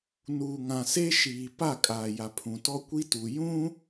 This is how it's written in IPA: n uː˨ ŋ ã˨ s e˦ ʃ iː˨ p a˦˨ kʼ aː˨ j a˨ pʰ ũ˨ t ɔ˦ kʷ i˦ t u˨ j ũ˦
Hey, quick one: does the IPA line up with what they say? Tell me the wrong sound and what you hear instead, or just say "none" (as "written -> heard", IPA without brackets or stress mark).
none